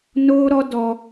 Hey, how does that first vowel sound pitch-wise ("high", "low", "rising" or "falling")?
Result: high